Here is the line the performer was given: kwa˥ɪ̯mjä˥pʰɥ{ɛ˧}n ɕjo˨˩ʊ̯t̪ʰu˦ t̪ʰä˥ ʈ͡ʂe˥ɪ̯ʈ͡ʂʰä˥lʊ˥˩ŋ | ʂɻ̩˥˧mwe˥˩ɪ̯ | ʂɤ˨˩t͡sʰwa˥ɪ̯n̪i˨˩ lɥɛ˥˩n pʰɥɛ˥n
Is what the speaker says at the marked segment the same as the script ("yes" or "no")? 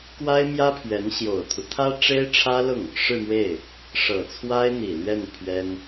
no